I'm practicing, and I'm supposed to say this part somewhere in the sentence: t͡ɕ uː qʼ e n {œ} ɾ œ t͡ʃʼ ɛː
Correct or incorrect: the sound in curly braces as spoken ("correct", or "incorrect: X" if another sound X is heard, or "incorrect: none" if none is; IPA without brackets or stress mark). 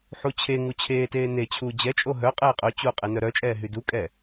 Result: correct